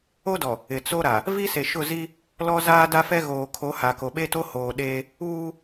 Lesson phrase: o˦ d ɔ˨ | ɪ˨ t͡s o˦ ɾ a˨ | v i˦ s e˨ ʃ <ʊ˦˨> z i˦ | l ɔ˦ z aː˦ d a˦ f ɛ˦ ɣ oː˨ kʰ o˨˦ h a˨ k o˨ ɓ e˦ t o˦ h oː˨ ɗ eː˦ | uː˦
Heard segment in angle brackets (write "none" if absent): ʊ˦˨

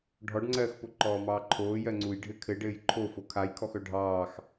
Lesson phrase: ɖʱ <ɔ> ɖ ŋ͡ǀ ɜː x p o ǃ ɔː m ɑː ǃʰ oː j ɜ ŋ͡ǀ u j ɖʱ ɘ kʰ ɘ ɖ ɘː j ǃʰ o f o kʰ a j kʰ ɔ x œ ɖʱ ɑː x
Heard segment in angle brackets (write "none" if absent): ɔ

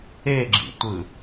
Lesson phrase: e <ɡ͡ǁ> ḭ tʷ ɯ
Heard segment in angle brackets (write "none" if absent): ɡ͡ǁ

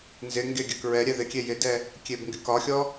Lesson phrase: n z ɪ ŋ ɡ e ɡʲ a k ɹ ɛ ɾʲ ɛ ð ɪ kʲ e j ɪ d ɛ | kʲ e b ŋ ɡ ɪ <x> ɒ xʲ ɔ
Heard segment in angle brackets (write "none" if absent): k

